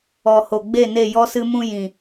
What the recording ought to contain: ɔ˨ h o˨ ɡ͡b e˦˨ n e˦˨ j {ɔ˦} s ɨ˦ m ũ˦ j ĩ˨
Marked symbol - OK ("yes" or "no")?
yes